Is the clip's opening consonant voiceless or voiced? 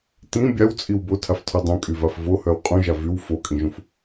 voiceless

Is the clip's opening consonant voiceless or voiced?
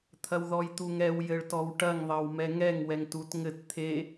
voiceless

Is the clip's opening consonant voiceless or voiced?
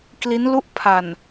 voiceless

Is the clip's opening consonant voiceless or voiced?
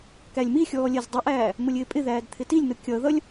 voiceless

